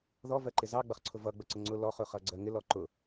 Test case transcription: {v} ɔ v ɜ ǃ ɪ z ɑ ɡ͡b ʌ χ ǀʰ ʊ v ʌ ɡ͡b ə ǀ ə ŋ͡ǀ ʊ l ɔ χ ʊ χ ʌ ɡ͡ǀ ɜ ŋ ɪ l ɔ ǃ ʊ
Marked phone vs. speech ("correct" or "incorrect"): incorrect